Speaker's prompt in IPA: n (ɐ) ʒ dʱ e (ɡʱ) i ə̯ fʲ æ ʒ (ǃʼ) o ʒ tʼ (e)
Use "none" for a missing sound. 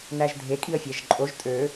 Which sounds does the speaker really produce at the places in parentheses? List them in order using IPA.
æ, kʼ, ǃʼ, ø

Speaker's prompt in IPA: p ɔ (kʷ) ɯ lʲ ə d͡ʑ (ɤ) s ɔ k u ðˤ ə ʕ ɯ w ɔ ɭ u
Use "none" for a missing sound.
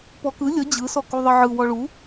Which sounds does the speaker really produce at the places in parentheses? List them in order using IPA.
k, ɯ

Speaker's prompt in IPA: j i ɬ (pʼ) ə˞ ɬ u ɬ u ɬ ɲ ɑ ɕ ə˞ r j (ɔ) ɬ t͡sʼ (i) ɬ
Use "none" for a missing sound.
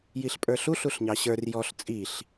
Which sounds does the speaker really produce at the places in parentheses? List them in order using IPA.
pʼ, ɔ, i

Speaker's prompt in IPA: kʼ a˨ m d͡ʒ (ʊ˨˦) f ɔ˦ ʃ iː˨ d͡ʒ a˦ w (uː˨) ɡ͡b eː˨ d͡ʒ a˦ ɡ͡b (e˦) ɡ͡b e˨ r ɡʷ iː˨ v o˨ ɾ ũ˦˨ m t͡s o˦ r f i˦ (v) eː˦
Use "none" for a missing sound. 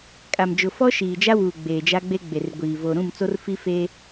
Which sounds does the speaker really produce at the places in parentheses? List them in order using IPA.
ʊ˨, uː˨, e˦, f

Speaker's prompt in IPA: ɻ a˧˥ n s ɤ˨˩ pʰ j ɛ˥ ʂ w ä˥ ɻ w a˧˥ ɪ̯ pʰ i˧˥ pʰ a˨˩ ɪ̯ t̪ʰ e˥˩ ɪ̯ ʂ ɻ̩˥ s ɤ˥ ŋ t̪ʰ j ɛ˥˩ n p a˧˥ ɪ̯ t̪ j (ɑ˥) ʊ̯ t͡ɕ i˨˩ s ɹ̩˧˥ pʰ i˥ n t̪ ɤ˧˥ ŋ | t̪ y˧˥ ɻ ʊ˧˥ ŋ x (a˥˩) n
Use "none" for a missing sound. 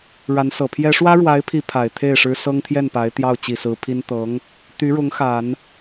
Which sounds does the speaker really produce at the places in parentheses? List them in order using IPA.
ɑ˥˩, a˨˩˦

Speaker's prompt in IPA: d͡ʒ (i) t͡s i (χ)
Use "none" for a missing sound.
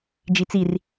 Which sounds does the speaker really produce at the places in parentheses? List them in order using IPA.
i, r

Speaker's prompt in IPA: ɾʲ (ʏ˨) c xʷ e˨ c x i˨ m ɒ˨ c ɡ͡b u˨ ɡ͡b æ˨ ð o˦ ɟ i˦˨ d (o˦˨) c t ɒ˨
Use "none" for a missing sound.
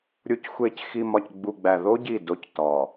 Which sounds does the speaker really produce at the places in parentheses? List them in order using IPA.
u˨, o˦

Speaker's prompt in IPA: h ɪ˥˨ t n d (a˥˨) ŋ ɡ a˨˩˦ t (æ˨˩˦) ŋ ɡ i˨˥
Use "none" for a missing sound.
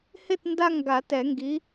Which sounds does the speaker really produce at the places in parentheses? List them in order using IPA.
a˥˨, ɛ˨˩˦

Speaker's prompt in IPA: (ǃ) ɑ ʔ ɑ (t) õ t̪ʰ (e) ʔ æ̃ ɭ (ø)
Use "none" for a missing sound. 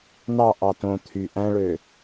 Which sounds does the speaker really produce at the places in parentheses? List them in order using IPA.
n̪, t, y, ø

